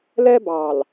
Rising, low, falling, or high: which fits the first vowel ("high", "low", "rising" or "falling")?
high